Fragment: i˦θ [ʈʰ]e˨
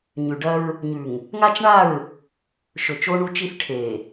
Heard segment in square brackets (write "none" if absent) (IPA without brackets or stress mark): ʈʰ